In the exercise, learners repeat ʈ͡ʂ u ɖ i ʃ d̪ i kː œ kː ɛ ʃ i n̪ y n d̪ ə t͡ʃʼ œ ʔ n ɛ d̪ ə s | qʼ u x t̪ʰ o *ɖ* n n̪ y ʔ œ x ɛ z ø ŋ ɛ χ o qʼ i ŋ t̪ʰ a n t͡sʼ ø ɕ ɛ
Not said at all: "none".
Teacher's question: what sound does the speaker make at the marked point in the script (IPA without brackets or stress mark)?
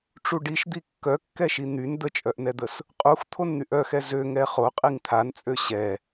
none